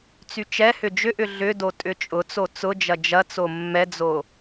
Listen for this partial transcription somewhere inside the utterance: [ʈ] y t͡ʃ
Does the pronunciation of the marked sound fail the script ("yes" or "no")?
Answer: yes